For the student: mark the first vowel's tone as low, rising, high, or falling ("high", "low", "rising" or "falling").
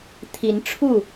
rising